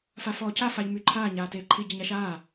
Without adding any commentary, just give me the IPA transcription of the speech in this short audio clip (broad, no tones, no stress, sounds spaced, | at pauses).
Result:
f a f ɔː cʰ a f a ʎ m y ǃʰ aː ɲ aː t eː ǃʰ i ɟ i ɲ a ʃ aː